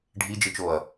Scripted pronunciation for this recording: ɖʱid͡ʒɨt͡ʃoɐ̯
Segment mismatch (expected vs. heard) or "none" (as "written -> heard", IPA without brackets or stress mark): none